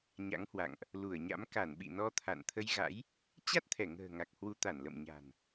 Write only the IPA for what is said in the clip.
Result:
ɲ a̰˧˥ ŋ h w a̰˧˨ ŋ ʔ | l u˧˩ ə̯ ɲ a̰˧˥ m k a˧˩ n ɓ ḭ˧˨ n ɔ˧ t̪ʰ a̰˧˨ n t̪ʰ ə˧ j ɣ a̰˧˥ j | t͡ɕ a˦˥ t̚ t̪ʰ ɛ˧˩ ŋ ə̤ː˨˩ ŋ a˨˩ k̚ h w u˨˦ t̪ a˧˩ n l ə̰˧˨ m ɲ a̤˨˩ n

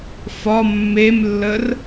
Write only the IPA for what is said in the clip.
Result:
f ɒ mː e m lː ə r

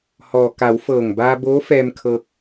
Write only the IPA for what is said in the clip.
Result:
h ɔː˩ k a˩˧ w f ɤː˧˩ ŋ b aː˧ b oː˧˥ f ɛː˧ m kʰ ɤː˧ k̚

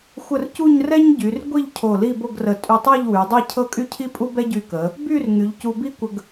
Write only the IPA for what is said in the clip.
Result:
xʷ ə˥˧ r c u˥˧ ɲ r ɛ˥ ɲ ɟ y˩˧ r ɡʷ i˥˧ ʎ cʰ o˧˩ l i˥˧ b o˥˧ ɡ r ə˧˩ tʼ y˧ tˤ ɤ˥˧ ʎ w y˩˧ dˤ ɛ˥˧ cʰ ɤ˥˧ kʼ y˥ cʰ i˥ pʼ u˥ b ɛ˥ ɟ y˧ k ə˩˧ | b y˥˧ r ŋ y˩˧ ʎ c u˧ b i˥ kʷ ə˧ ɡ

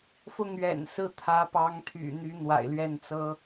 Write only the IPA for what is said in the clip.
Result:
f ʊ˥˩ ŋ ɥ ɛ̰˨˩ n s ɹ̩˥˩ t̪ʰ ä˧˥ p ɑ˧˥ ŋ t̪ʰ y̰˨˩ n̪ y˧˥ n̪ w a̰˨˩ ɪ̯ l ɥ ɛ˥˩ n t͡s ɤ˥

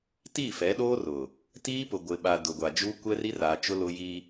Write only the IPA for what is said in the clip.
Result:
t i˦˨ f ɛ˨˦ ɗ oː˦ r ʊ˨ | t iː˦ p ʊ˨ ɡʷ ɪ˨ ɓ a˨ d ʊ˨ ɡʷ a˨ d͡ʒ u˦ kʷ ɛ˦ r i˦ r aː˨ t͡ʃ ʊ˦ l ʊ˦ j i˦

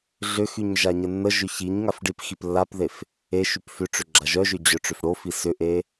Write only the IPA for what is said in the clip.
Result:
ɮ ʏ x y ɲ ʒ a ɲ ə nː ə ʒ ʏ ç i ɲ ŋ a f ɖ i p x i p lː a p ð e f | e ʃ y p f ʏ ʈ͡ʂ ʏ ɡ͡ǁ a ʒ œ ʒ ʏ d͡ʑ œ ʈ͡ʂ ʏ f ɽ o f i s ʏ ʔ e

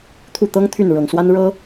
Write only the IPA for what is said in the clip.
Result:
t̪ʰ u˥˩ t̪ ɤ˥ ŋ t̪ʰ y˥˩ n ɻ ɤ˨˩ ŋ s w a˥ n ɻ ɤ˥

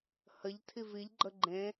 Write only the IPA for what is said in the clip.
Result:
h ə ʎ tʰ i v i ʎ ɡ͡ǃ ə ɡ͡ǃ ẽ

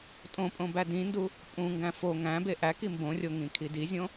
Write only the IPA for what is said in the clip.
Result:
tʼ õ pʼ õ b æ d ĩ n d u | pʼ ũ ŋ ɡ æ̃ f o ŋ æ̃ b e ʔ æ k i m b õ rʲ o ŋ ĩ kʰ i d i zʲ õ

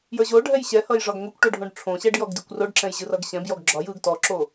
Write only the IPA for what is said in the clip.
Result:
j ə˞ ʑ o ɖʱ ɛ j ɕ ɛ h ʌ j ʐ ɒ ɡ ŋʷ i kʷ ʈ o ɖʱ õ ɖ ʈ͡ʂʰ õ ɕ ɛ ɖ j ɔ ɡ d i kʷ r o ɖ ǁ ɛ̃ j ʑ ɯ r ʌ ɡ ɕ ɛ̃ b j ɔ ɡ ɡ͡ǁ ɒ j ɯ ɡ t ɔ ǁ o

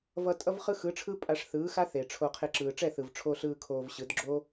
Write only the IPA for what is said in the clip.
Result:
v ʌ˧ tʼ ʌ˦ v χ ɯ˦ x ɯ˨˦ ʈ͡ʂʰ ɯ˦ pʼ a˧ ʂ θ ɯː˨˦ x a˦ θ e˨ ʈ͡ʂʰ o˧ qʰ e˧ ǁ ɯː˨ ʈ͡ʂ ɛ˦˨ θ ɯ˨ v ʈ͡ʂʰ o˧ ɬ ɯː˧ kʰ oː˧ v ɕ ɯ˨˦ d ɡ͡ǁ o˦

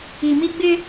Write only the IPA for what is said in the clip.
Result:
i˨ m i˦ ɡ͡b ɪ˦

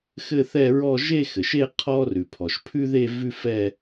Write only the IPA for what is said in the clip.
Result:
x ɘ˥˧ θ ɛ˥˧ ɹ ɔ˥˧ ʒ e˥˧ x ɘ˩ ʃ e˥˧ qʰ ɔ˥ r ʉ˩ pʰ ɔ˩ ʃ pʰ ʉ˥ ð e˥˧ v ʉ˥ f ɛ˥˧

